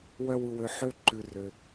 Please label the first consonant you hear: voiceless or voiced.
voiced